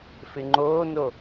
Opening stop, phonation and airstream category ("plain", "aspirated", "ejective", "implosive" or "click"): click